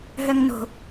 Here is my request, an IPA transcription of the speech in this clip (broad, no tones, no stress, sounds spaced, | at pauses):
ɦ œ ŋ n o̤